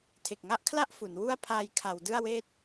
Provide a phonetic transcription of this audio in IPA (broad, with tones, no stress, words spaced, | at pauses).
tʰe˨˩k̚ŋa˥˩ʔkʰla˥˩ʔ fu˩˦n wu˧a̯ pʰaː˧jkʰa˩˦w dɯ˥˩a̯weː˥˩t̚